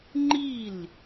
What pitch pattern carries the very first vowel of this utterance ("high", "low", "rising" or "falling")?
falling